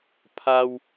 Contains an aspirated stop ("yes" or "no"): yes